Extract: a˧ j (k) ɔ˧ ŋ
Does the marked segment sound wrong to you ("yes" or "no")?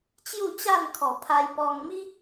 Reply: yes